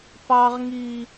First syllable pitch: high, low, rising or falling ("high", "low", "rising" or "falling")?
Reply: high